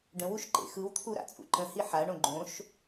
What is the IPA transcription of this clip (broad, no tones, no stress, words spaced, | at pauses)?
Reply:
ɖə̃wuʃ ǃḛxɯwt̪ʰu ɾa̰t͡sʼṵǃə̃hi ħaɳõ ɡ͡ǃõʃ